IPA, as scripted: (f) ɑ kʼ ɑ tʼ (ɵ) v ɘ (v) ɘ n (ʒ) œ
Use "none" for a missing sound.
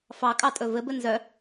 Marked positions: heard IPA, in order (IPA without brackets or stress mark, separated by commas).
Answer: f, ɵ, b, z